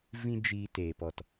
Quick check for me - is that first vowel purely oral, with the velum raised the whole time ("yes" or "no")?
no